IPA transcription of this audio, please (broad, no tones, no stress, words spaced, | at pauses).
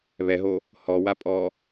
βɛɦo | hɔwapʼɔ